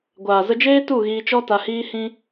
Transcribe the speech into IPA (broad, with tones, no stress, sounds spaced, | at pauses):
ɡʷ aː˨ z ə˧ d͡ʒ eː˦ t u˦˨ ɣ iː˧ t͡ʃ ɔ˦ t a˧ h iː˦ h ĩ˦